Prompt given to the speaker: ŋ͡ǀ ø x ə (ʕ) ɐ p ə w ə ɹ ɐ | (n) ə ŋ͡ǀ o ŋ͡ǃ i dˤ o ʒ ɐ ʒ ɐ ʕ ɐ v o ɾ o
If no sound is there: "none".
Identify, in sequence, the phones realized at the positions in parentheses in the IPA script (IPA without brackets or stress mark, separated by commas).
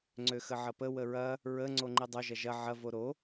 ʕ, ɹ